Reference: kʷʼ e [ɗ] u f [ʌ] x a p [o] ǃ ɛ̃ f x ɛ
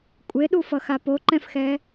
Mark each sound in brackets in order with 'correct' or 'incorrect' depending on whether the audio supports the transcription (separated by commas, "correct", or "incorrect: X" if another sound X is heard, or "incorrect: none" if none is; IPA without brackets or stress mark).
correct, correct, correct